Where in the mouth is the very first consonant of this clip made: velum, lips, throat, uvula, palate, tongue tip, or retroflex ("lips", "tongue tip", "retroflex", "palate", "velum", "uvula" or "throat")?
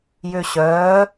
palate